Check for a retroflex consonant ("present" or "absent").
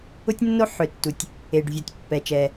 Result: present